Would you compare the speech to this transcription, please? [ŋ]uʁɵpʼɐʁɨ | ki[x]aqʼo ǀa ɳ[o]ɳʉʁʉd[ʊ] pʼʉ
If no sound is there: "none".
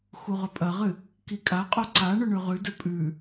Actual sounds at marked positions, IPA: x, kʼ, ɵ, ɵ

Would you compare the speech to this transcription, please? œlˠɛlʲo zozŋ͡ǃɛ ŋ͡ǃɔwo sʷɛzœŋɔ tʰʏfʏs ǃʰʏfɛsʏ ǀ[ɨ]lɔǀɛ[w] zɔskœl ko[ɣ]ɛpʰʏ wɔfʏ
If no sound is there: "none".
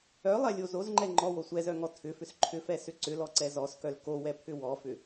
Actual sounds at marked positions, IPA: ʏ, none, w

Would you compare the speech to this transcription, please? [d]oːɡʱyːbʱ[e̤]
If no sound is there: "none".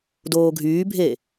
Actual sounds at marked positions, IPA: d, e

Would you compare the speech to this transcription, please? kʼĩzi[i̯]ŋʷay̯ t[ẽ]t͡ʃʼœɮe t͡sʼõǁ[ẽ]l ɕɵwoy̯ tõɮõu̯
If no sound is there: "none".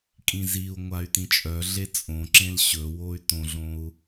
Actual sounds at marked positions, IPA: u̯, ĩ, ẽ

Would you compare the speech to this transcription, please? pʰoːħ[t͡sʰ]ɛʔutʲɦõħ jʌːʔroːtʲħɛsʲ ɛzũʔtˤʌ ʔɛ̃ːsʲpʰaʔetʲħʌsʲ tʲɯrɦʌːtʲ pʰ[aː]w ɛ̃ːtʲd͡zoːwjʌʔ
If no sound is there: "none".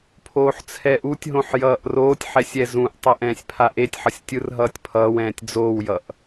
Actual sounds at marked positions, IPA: t͡sʰ, ʌː

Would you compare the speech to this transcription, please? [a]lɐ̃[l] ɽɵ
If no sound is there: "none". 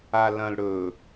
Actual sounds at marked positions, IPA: a, l

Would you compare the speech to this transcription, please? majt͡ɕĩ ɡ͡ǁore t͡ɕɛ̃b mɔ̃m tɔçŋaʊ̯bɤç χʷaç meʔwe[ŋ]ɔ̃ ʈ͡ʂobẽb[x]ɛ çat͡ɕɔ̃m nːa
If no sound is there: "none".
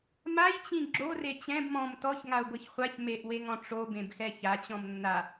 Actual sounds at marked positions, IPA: ŋ, x

